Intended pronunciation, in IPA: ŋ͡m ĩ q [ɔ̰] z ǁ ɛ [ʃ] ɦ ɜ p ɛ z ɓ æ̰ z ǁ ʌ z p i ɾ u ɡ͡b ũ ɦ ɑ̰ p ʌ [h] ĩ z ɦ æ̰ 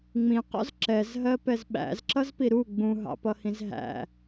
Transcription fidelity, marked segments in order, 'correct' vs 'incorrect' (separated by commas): correct, incorrect, correct